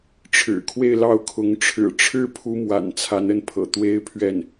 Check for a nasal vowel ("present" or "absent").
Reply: absent